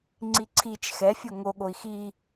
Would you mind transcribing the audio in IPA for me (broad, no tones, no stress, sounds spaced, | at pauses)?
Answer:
ŋ͡ǀ i ǀʰ i t͡ʃ x ɛ fʲ o ŋ o ɠ o i̯ x i